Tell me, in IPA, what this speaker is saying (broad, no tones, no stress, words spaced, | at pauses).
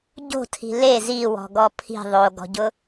ɟo̤tʰi̤ le ziwɔ̤ɡɔ pʰi̤ ðˤoɡɔ̤ɟʊ